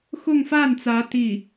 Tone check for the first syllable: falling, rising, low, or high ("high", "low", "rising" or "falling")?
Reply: falling